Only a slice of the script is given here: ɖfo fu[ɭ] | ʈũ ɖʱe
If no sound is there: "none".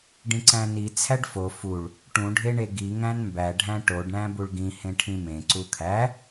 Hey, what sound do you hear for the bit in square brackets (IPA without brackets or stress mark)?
ɭ